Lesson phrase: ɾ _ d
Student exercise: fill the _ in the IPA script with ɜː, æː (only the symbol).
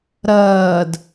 ɜː